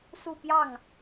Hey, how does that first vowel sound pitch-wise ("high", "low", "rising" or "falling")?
falling